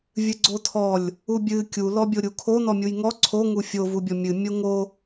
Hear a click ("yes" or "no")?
yes